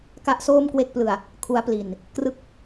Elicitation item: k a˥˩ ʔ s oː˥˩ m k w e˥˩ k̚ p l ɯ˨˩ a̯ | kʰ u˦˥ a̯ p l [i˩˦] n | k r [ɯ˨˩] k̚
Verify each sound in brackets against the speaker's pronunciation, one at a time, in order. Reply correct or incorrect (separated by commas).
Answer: incorrect, incorrect